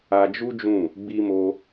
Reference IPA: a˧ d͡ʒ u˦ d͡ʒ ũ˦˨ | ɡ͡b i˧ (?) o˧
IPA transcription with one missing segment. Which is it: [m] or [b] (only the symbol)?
m